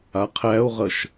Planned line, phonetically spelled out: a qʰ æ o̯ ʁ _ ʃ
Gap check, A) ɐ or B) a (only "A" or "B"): A